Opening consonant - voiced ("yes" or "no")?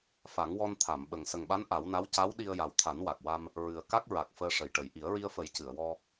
no